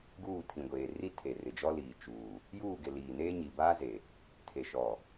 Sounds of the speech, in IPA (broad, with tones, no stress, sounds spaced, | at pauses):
ɡ uː˦˨ tʰ ĩ˨ ɡʷ eː˨ r i˦ tʰ e˨ r ɪ˨ d͡ʒ ɔ˦ l iː˨ t͡ʃ uː˨ | j uː˦˨ ɡ ɪ˨ l iː˨ n eː˦ ɲ i˨ b aː˦ z e˨ | tʰ e˨ ʃ ɔ˨